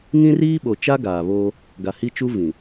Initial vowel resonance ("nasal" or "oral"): nasal